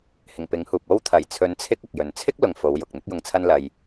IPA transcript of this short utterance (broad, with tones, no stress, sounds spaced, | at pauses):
h ɪ˨˩ ŋ p ɪ˨˥ ŋ h uː˨ p̚ o˧ w t̪ʰ ɐ˨˩ j t͡sʰ ɵ˨˧ n t͡sʰ ɪ˧ k̚ ʊ˨ k̚ j ɵ˨ n t͡sʰ ɪ˥ k̚ l ʊ˨ ŋ f o˨˧ w j ʊ˨ k̚ n̪ ɪ˧ k̚ j ʊ˨ ŋ t͡sʰ ɐ˧ n l ɐ˧ j